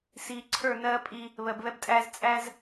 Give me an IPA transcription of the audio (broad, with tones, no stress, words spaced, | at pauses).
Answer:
siː˨ǀʰə˞˦˨nɜː˦pʼi˦ | βɜ˨bβɛ˦btʼæː˦z t͡sʼæ˦z